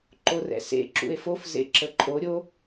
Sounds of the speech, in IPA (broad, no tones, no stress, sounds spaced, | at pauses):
ǃ o r ɛ̰ s ḛ ǁ ṵ e̯ f o f z ḛ ǁ ə ǃʼ o ɾʲ o